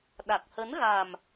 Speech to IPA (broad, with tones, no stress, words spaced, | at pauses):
ɗa˨˩k̚hə˨˦nɣa˨˩m